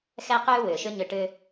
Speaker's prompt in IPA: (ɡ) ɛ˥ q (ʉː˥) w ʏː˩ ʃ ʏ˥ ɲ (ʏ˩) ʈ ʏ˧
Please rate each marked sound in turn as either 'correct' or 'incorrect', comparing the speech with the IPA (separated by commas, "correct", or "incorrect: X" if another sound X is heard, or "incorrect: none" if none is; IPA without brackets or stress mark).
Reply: incorrect: x, correct, incorrect: ʏ˧